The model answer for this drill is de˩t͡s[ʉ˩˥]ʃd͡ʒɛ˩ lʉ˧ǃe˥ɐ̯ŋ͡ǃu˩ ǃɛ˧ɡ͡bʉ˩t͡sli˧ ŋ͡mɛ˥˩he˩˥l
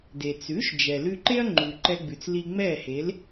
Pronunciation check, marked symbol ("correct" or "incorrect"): correct